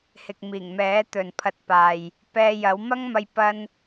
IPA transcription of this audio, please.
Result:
h ɪ˨ k̚ m iː˨˩ ŋ m ɛː˨˥ t̪ ɵ˨ n pʰ ɐ˧ t̚ p aː˨ j | p ɛː˧ j ɐ˨˥ w m ɐ˥ ŋ m ɐ˧ j p ɐ˥ n

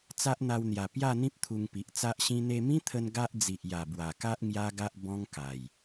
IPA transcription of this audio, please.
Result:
t͡s a˦ ʔ n̪ a˧ w n̪ j a˨˩ p j a˥˧ n̪ ĩ˦ p̚ t̪ʰ u˧ ŋ p i˨ ʔ t͡s a˦ ʔ ɕ ĩ˦ n̪ e˧ m ĩ˦ t̪ʰ ə˧ n ɡ a˦ ʔ d͡z i˨ ʔ j a˨˩ b w a˨˩ k a˦ ʔ ŋ j a˦ ɡ a˦ ʔ b ɔ̃˦ ŋ k a˨˩ j

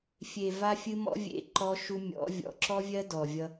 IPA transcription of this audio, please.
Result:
fʲ e˨ v a˧ fʲ ɨ˧ m ɔ̰˦ vʲ ḛ˧ ǃ ɔ˧ ʃ u˧ mʲ ɔ̰˨˦ vʲ ɔ̰˨˦ ǁ ɔ˦ vʲ ɜ˦ d ɔ˨ vʲ ʌ˧

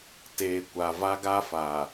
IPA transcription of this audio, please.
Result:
t e˨ kʷ a˨ v a˦ ɡ a˦ f a˨

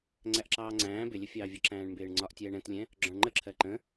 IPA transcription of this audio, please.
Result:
ŋ͡ǀ æ ʔ ǁ ɑː ŋ͡ǀ æ̃ː b ɪ lʲ ə fʲ ɑː vʲ ə ǁ æ̃ː ɳ m b ɪː ɳ ŋ͡ǀ ɒ ʔ tʲ ɛː ɳ ɛ̃ t lʲ ɛ̃ | ɡ͡ǁ ɔ̃ ɳ ŋ͡ǃ ə ǁʰ ɜ ǃ ə̃

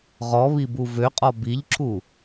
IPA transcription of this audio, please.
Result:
ʁ ɔ β i b u v ø qʼ ɔ b i ʎ ǁʰ u

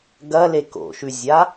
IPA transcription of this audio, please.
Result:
ɡ ɐ l e k o̰ ʃ ʉ zʲ a

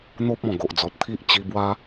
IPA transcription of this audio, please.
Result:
n̪ o˦ p̚ ɔ̃˨˩ ɡ o˨ ʔ d͡z ɔ˨ t̚ t̪ʰ i˦ ʔ t͡ɕ i˧ b w a˦

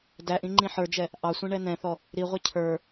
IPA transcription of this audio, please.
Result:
d æ ʔ ĩ ŋ͡ǃ ĩ ħ ə˞ d͡ʒ ɛ | ʔ ɑ sʷ ĩ ɳ ɛ n̪ ɛ̃ θ ɔ | ɾ i ʁʷ ə˞ cʰ ə˞

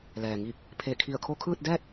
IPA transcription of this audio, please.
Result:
l ɛː˩ ŋ iː˧˩ k̚ | pʰ e˧˩ kʰ i˧˩ ə̯ kʰ o˧ kʰ ɯː˥˨ t̚ d ɛː˥˨ t̚

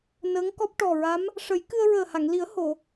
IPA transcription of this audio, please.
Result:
n əː˧˥ ŋ k ɔ˦˥ p̚ ʈ ɔ˨˩ ɹ a˧˥ m | ʂ ə˨˩˦ j k ɨ˧ ə̯ ɹ əː˨˩ h a˨˩˨ ŋ l i˨˩˦ ə̯ h o˨˩˨

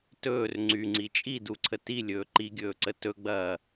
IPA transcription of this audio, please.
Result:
t ɵː r ŋ͡ǀ y ŋ͡ǀ i t͡ʃʼ i d u ǀʰ ə t i lʲ ɵː ǃ i ɡʲ ɵː ǀ ə t ɵ ɡ͡b ɐː

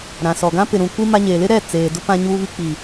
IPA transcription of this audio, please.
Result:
ɾ ã˨ s ɔ˨ ɡ ã˦ p ɪ˨ ɾ ũ˨ kʷ i˦ m a˦ ɲ eː˨ l ɪ˦ ɾ ɛ˦˨ t͡s eː˨ d ʊ˦ p ã˦ ɲ uː˦ β i˦ k͡p i˨

